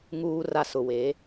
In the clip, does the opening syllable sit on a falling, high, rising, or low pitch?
low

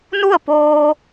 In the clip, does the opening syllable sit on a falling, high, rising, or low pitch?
falling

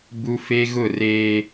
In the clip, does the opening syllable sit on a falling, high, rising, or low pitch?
high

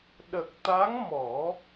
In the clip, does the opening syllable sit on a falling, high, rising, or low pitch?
low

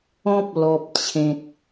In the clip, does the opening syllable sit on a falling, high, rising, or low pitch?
high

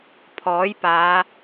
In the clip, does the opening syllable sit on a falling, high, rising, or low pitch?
rising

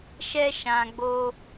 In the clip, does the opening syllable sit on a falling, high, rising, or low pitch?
high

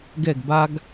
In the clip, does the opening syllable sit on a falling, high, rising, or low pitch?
falling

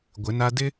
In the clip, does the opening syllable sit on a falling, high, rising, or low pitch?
rising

